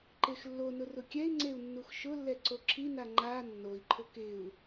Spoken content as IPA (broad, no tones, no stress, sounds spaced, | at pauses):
ǃ e x lː o n ʊ r ʊ kʲ ɛ i̯ ŋ͡ǀ e u̯ nː u x ʃ ʊ lː ɛ ǀ o ǁʰ i n a ŋ͡ǃ a nː o i̯ ǃʰ ʊ k ɪ u̯